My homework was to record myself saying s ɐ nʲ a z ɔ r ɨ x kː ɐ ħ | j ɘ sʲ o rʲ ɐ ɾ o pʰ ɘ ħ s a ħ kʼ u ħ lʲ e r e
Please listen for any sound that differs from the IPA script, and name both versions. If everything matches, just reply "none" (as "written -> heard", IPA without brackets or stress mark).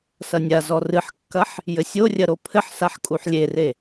x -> ħ